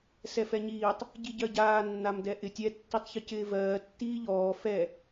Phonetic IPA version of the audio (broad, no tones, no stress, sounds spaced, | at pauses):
s ɛ f ɛ ɲ iː tˤ | ɟ i ɟ ɜ ɟ aː nː a m d ɛ ʔ ɪ tʲ ɛ tː i tˤ ç ə c ɪː v ɜː tː iː ʎ ɔː f ɛ